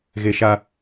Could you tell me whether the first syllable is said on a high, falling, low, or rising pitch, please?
high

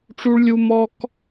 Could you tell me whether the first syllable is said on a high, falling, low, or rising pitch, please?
high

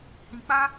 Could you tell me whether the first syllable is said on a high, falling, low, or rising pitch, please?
low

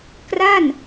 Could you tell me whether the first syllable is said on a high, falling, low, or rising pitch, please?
falling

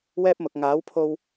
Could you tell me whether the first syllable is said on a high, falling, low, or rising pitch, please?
high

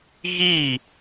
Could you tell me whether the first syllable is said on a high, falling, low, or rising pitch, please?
falling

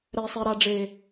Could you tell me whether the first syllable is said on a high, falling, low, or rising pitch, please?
low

